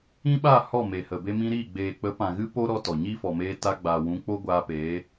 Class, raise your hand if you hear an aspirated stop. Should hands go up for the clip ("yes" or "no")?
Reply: no